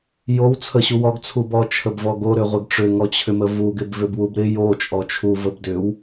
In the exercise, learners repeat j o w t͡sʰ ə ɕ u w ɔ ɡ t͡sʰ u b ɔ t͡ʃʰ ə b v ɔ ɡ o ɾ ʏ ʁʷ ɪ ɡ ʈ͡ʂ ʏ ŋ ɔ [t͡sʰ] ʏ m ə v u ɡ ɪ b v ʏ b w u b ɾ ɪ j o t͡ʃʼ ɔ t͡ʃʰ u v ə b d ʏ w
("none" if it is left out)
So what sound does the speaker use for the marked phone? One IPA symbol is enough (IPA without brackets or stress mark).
t͡ɕʰ